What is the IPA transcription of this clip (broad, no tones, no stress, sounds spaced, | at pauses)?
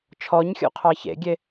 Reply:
t͡ʃʰ ɔ ɲ xʲ o̰ qʰ ɑ ç ḛ ɡʲ e